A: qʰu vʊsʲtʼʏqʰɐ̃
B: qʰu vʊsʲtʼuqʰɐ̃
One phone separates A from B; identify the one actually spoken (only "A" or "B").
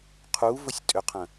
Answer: A